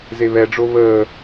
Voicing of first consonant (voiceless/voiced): voiced